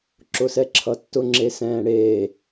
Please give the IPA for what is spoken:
ǁ ʊ s ɛ ǁʰ ʌ tː ʊ ŋ͡ǁ e s ɛ̃ː ɽ eː

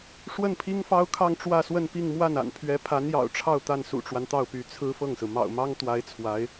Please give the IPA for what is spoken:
ʂ w ə˥˩ n pʰ i˥ ŋ f ɑ˥ ʊ̯ kʰ ɑ˥˧ ŋ ʈ͡ʂ w ä˥˧ s w ə˥˧ n p i˥˧ ŋ m w a˥˩ n a̰˨˩ n pʰ ɥ ɛ˧˥ pʰ a˧˥ n j ɑ̰˨˩ ʊ̯ ʈ͡ʂʰ ɑ˥˧ ʊ̯ t̪ a˥˩ n s ṵ˨˩ ʈ͡ʂ w a˦ n t̪ ɑ˥˩ ʊ̯ p y˧˥ t͡sʰ ɹ̩˥ f ɤ˥˩ ŋ s ɹ̩˩ m ɑ̰˨˩ ʊ̯ m ɑ˥ ŋ t̪ w a˧˥ ɪ̯ t͡sʰ w a˧˥ ɪ̯

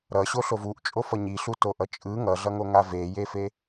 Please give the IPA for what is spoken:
ɾ ʌ ɕ o ɬ o v u ʔ t͡ʃʼ o f ʌ ɲ i ɬ u t o ʔ ʌ t͡ʃʼ ɯ ŋ ʌ ɮ ʌ ŋ o ŋ a v e j e f e

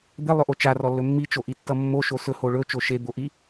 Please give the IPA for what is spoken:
d̪ e lˠ ɵ ʔ o t͡ʃ a r ɔ lː ɵ mː i t͡ʃ o ʔ i tː ʌ mː o ʃ o s ɵ h o ɭ ɵ t͡ʃ o ʃ e d̪ o ʔ i

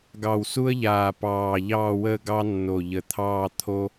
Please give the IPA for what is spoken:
ɡ ɑ˧˩ w s u˥ ə̯ ʎ aː˧˩ p ɑː˧˩ ʎ ɑː˥˧ w əː˥˧ ɡ ɑ˥ nː o˧˩ ʎ ə˧˩ t̪ʰ ɑː˥˧ t̪ʰ o˥

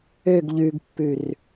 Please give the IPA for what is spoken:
ø ɡ ʎ ʉ ɡ pː ʉ r

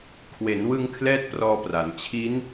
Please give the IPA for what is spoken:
kʰ w e˩˦ n w ɯ˧ ŋ kʰ l ɛː˥˩ t̚ p r ɔː˧ p r a˩˦ n t͡ɕʰ i˦˥ n

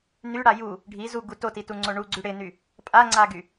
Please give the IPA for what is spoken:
n y ɽ a j u | ɖʱ i z u ɡ u t o t i t u ŋ͡ǀ o ɳ u ɡ͡ǀ y ɽ ɪ n y | pʼ a ŋ͡ǀ a ɡ y

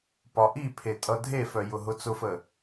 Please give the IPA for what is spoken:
p ɒ ʔ i pʰ e tʼ ʌ dʱ e f œ j ʊ ɦ ʊ t͡s ʊ f ə

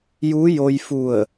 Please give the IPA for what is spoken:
j u˧˥ j o˧ j f u˧˩ ə̯

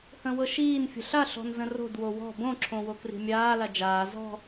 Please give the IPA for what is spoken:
h ə̃ w ɤ ʃ iː n fʲ ə̤ ɬ a ɬ ɔ̤ n z ə̃ r o̤ d w o w ɔ̤ b õ ǁʰ õ w o k r i̤ mʲ aː l a d͡ʒ aː z ɔ̤

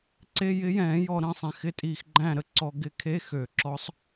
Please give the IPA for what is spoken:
ǀ e˧˥˧ j ɪ˧˥ j ɛ̃ː˨˩˦ j ɔ˨ ɾ ə̃˥˨ sˤ ɛ̃˨ x ɪ˧˥˧ tʼ iː˨ x ɡ͡ǃ æ̃˥˨ ɾ ə˥˨ ǀ ɔ˨ ɡ ɪ˧˥ kʰ e˧˥˧ x ø˨˩˦ ǁ ɔ˧˥ sˤ

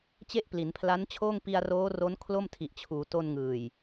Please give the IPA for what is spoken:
t͡ɕ e˥˩ ʔ p l i˩˦ n pʰ l a˦˥ n t͡ɕʰ oː˥˩ ŋ p i˧ a̯ r oː˦˥ r o˦˥ n kʰ l o˥˩ m tʰ i˨˩ ʔ t͡ɕʰ uː˩˦ t o˧ n ŋ ɯː˨˩ j

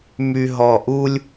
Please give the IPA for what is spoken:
m y˧ ɦ ɔ˧˩ ʔ u˥ lʲ

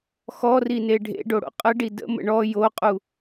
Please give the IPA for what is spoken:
x ɔ r i n e ɖʱ ḛ ɖ o ɽ o̰ qʼ ə ɖ i d ə̰ m ə̰ ɳ ɔ j o qʼ u

